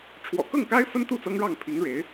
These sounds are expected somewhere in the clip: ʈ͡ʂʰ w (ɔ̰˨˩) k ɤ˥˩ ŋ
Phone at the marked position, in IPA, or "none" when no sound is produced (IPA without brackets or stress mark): ɔ̰˨˩